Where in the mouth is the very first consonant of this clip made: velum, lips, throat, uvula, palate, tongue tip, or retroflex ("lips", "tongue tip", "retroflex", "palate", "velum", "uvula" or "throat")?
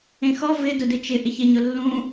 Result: velum